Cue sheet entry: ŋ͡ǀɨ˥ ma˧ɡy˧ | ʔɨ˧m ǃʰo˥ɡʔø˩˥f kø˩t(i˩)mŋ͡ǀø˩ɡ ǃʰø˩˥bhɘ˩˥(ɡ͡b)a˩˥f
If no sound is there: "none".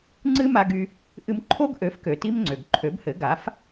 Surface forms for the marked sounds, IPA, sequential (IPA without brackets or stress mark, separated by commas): i˥, ɡ